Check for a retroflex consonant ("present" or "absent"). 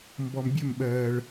present